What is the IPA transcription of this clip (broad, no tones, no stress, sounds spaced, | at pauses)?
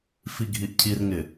f i ɡʱ i ʔ cʰ i r ŋ ɪ